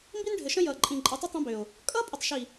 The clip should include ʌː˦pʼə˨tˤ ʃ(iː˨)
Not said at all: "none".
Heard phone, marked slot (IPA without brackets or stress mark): i˨